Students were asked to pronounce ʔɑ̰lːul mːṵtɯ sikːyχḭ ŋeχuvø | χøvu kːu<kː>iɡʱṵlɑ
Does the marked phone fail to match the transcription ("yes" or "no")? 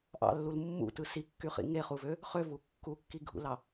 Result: no